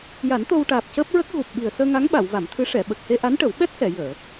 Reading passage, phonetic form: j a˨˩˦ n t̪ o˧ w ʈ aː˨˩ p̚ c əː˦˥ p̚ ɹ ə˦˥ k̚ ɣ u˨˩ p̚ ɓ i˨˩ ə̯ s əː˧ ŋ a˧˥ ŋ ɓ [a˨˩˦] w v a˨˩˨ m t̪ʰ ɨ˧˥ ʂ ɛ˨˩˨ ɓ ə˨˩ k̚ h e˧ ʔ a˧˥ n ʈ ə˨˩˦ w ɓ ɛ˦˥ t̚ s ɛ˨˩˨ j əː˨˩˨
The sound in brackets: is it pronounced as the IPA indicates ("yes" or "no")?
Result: no